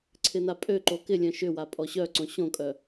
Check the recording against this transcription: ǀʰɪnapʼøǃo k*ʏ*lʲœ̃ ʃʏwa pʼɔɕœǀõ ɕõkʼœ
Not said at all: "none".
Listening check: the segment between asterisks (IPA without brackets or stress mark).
ɪ